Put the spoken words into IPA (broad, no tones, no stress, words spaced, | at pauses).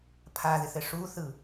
pʰaðɪθɘ ʂuθɯ